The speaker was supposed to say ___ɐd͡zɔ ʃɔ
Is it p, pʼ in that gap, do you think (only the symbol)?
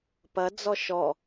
p